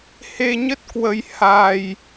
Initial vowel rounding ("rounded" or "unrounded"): unrounded